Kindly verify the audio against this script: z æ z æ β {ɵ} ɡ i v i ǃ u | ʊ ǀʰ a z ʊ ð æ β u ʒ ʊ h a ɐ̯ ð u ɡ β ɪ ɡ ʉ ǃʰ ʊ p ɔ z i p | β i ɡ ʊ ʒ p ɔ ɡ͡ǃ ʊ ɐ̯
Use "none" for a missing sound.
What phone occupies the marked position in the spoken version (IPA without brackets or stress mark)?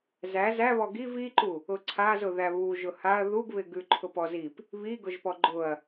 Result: ɔ